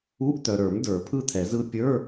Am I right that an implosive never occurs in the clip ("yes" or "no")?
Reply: yes